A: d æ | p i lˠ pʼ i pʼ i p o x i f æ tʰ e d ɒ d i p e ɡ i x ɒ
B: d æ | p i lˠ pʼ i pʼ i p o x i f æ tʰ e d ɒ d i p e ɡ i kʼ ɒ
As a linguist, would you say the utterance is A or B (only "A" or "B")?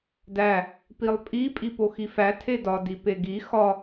A